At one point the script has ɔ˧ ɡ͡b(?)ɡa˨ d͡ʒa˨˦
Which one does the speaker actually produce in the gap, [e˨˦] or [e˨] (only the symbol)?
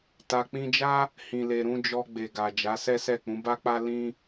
e˨